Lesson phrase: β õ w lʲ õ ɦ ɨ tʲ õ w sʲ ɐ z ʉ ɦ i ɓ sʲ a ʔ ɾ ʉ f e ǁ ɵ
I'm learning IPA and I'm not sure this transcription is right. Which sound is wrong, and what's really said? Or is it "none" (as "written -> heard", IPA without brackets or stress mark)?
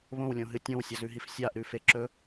ɓ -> f